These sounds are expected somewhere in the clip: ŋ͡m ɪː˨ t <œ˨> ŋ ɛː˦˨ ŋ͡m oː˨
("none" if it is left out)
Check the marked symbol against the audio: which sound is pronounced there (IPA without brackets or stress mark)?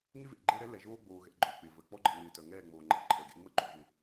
œ˨